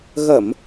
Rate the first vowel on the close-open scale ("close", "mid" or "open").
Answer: mid